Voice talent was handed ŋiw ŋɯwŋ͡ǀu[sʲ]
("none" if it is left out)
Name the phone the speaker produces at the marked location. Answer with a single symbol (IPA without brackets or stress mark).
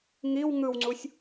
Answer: sʲ